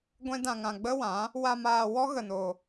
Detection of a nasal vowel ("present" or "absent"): present